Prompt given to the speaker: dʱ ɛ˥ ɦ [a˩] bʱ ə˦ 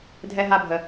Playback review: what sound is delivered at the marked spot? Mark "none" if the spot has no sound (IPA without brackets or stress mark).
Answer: a˥